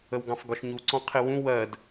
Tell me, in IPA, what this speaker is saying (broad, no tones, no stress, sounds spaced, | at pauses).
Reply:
ə w ɡ ɑ̃ f ɡ ɒ ʃ ɲ u ǀ ɔ̃ qʰ ɪ w ũ w ɜ d